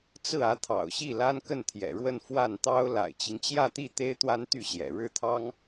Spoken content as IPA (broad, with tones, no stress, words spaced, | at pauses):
t͡sɹ̩˥˩ä˧˥t̪ʰɑ̰˨˩ʊ̯ɕi˥˩ la˥nkə˥˩nt̪ʰjɛ̰˨˩ɻwə˥˧n fwa˥˩nt̪ɑ˥ʊ̯ la̰˨˩ɪ̯t͡ɕi˦ŋt͡ɕjä˥˧t̪i˥˩ t̪e˥ɪ̯t̪wa˥nt̪y˥˩ɕjɛ̰˨˩ ɻɻ̩˥˩t̪ʰɑ˥ŋ